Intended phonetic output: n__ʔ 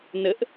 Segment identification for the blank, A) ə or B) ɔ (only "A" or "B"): A